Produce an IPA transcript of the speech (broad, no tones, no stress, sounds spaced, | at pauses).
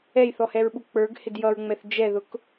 ɛ j θ ɔ h ɛ ɹ ɓ u k͡p ə˞ ɡ h ɪ d j ʌ ɹ ŋ͡m ɛ θ d͡ʒ ɛ ð ʊ k